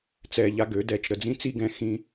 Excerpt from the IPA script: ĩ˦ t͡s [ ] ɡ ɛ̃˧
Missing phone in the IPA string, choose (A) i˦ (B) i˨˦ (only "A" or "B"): A